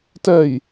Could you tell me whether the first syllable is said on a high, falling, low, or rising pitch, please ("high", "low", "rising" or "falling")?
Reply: falling